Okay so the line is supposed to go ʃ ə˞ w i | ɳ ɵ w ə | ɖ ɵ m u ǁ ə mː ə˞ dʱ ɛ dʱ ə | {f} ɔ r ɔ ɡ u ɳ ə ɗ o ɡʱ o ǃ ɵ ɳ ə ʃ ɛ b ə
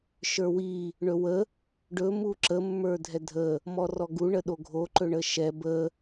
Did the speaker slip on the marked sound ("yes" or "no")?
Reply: yes